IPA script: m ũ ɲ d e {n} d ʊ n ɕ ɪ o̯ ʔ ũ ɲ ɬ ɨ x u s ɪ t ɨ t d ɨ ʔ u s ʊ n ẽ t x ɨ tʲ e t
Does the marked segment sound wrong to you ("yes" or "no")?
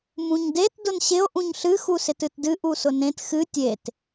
yes